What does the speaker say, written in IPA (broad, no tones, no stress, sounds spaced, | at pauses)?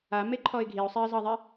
a m e ǃʰ ɔ ɪ̯ ɡʱ i ʊ̯ sˤ ɛ ə̯ z ɑ ðˤ ɛ